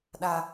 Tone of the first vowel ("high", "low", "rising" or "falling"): high